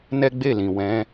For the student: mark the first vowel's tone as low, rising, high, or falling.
high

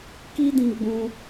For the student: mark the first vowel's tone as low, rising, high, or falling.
high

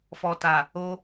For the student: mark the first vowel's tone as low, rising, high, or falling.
low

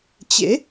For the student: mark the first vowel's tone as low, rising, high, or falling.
rising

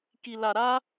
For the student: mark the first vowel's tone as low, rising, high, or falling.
low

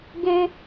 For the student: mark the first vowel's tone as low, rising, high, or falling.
high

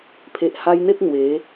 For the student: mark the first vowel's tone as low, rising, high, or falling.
low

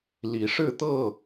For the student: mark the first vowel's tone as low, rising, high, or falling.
rising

